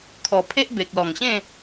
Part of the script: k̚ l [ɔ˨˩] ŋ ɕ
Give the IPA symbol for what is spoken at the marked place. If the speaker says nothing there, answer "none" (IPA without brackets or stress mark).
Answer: ɔ˨˩